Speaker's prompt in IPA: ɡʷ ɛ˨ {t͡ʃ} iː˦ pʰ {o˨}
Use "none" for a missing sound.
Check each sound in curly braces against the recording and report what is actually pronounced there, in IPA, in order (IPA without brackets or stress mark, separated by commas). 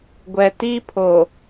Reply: t, o˨